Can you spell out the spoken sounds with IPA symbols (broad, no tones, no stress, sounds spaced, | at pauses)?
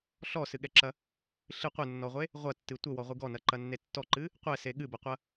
ɬ ɔ s ɨ ɠ ɛ ǁ ɐ | ɬ ɨ qʷ ɘ nː ɔ ʁʷ e | ʁʷ ɐ tː ɨ tʷ ɘ w ɔ ʁʷ ɨ ɡ ɔ n ɐ ǃ ɐ nː e tː ɔ ǃ ɨ | qʷ ɛ s e ɠ ɨ b ɐ qʷ ɐ